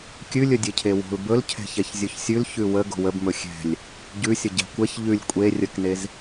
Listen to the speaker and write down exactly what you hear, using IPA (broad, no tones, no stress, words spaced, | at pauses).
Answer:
kʲʉlʲɵ dʲecʰewo̤l bɵlcʰɛ̤çɛç zʲɵçsʲʉl çʉwə ɡo̤wəbmɵ xʲɛ̤lʲ | ɟʉsʲə ɟɛ̤kʷɛç ʎʉlʲ kʷʼe rʲəknez